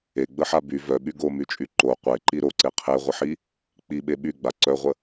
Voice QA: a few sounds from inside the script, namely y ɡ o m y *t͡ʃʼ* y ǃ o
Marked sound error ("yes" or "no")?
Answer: no